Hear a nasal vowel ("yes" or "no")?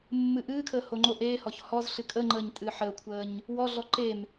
no